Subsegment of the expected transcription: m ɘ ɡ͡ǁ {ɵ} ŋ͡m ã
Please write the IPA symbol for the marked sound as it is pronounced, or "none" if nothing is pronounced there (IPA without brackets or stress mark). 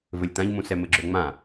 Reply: ɵ